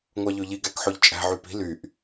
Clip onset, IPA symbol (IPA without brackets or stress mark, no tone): ŋʷ